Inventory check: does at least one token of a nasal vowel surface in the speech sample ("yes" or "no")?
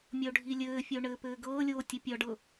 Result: no